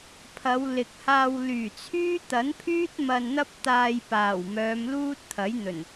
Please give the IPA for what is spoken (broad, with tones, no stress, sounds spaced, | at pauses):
pʰ ɐ˨˧ w l ɪ˨ k̚ h aː˧ w l yː˨˩ t͡sʰ yː˥ t̪ ɐ˨˥ n pʰ yː˥ t̚ m ɐ˧ n n̪ ɐ˥ p̚ t̪ aː˧ j p aː˨˩ w m œː˨˧ m l uː˥ t̚ t̪ʰ ɐ˨˥ j n̪ ɵ˨˩ n